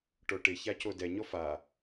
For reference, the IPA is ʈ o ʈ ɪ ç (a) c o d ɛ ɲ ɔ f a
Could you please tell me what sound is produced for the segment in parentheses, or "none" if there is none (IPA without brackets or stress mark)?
a